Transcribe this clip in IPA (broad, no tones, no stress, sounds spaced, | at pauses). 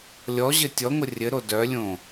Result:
lʲ ɔ ʑ ɘ tʲ ɔ ŋʷ ə rʲ ɘ ɾ o d œ lʲ õ